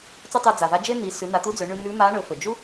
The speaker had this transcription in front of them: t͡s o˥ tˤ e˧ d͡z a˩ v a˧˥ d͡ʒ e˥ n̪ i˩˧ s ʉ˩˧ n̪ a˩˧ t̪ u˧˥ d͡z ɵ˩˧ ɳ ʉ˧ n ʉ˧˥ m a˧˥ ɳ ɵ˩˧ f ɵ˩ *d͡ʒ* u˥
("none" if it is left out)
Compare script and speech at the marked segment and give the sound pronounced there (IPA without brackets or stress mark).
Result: d͡ʒ